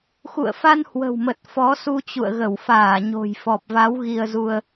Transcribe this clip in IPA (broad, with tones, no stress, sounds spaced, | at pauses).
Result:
x ṵ˧˨ ə̯ f a˧ n h w ə̤˨˩ w m ə˨˩ t̚ f ɔ˨˦ s u˧ t͡ɕ ṵ˧˨ ə̯ ɣ ə˧˩ w f aː˧˩ ɲ o̤˨˩ j f ɔ˨˩ p̚ v a˨˦ w ɣ i˧ ə̯ z u˧ ə̯